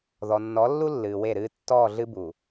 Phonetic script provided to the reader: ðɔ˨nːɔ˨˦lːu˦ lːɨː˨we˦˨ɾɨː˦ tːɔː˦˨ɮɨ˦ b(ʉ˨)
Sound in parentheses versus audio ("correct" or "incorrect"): incorrect